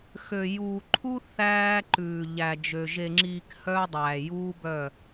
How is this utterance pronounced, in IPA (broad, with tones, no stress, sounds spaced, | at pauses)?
x ø˨ j uː˨ ǃʰ u˦ θ æː˦ ǃ ʉː˨ ʎ æ˨ d͡ʒ ø˨ ʒ e˨ ŋ͡ǁ iː˨ k h œ˦ dˤ æː˨ j uː˦ b œ˦˨